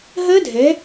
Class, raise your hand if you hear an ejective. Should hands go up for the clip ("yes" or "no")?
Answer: no